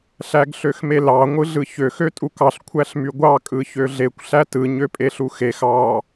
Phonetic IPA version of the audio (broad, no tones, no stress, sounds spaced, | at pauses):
ɬ æ ɡ ɬ ø x m e l ɑ ŋʷ ɯ ɮ ɯ ç ø x ø tʼ u k ɑ ɬ kʷʰ æ ɬ m y ɡʷ ɑ kʼ ɯ ç ø ɮ e kʷ ɬ æ t ɯ ɲ ø pʼ e ɬ u x e x ɑ